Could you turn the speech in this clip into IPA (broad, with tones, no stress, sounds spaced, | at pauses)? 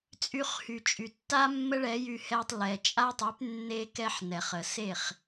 t͡sʼ y˧ χ h y˩ t͡ʃʼ y˩ tː a˥ mː ə˥ ɭ ɛ˩˥ j y˧ h ɛ˧ tˤ l ɛ˩ t͡ʃʼ a˥ tˤ y˩˥ p nː e˥ k ɛ˥ ħ n ɛ˩ χ ə˩ s e˥˩ χ